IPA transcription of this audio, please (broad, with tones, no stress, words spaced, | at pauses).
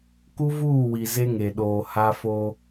ku˦vuː˦˨wi˨ ze˦ŋe˨ɗoː˨ ha˦fo˦